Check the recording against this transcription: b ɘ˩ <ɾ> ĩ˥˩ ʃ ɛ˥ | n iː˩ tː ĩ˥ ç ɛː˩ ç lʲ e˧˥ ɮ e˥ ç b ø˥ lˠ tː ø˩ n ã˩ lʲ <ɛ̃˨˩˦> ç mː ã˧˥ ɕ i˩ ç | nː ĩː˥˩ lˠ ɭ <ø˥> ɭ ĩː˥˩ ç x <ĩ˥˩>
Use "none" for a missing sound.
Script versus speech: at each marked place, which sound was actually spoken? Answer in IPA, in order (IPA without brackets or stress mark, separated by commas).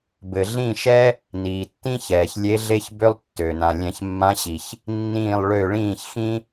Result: ɮ, ɛ̃˨˩˦, ø˥˩, ĩ˥